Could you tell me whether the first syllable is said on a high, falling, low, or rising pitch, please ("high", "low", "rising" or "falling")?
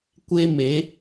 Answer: high